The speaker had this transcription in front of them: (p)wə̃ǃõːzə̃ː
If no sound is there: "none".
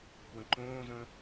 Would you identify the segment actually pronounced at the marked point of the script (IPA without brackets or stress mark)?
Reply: p